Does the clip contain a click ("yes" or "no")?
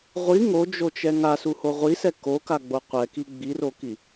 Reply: no